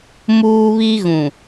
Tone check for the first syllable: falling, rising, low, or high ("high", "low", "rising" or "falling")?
high